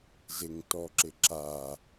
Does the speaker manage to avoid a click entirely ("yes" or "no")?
no